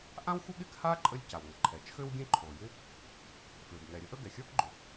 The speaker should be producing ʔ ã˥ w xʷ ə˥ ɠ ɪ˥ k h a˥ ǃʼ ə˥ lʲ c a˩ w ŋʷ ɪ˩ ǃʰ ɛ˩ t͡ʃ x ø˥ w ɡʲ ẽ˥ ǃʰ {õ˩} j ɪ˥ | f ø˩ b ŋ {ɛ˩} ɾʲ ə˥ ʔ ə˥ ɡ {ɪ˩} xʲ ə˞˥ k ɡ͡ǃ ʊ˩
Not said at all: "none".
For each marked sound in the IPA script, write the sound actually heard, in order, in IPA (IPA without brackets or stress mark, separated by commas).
o˩, ɛ˩, ɛ˩